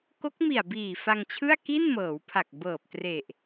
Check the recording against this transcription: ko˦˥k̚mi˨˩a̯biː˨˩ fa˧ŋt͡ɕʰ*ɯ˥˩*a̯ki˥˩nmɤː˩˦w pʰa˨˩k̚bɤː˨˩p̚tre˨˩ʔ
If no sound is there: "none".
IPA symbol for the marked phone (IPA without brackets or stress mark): ɯ˥˩